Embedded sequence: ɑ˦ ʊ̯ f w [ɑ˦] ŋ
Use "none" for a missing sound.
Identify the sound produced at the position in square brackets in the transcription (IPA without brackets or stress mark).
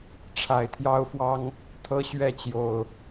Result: ɑ˦